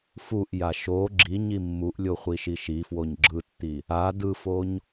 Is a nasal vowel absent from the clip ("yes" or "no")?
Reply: yes